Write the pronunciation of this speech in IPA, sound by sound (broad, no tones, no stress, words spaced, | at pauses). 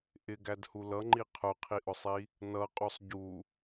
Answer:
ʔɪɡædhu lʌŋ͡ǃi qʰʊqʰiʔʊsˤi | nʌqʼusˤ ɟu